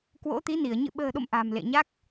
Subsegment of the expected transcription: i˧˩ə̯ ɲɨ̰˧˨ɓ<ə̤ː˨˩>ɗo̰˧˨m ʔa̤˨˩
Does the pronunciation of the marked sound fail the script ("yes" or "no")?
no